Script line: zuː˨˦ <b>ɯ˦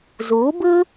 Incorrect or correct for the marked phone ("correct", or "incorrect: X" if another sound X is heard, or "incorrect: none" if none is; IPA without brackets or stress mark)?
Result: correct